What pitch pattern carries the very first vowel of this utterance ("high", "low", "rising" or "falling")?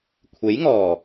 rising